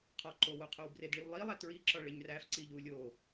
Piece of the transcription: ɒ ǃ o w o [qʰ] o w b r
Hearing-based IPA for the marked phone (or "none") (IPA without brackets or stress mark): qʰ